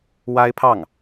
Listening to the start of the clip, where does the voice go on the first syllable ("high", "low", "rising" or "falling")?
high